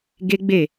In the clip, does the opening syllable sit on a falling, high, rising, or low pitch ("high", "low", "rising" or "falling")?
high